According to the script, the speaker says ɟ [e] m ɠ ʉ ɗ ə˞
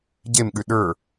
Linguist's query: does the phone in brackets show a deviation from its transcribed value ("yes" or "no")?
no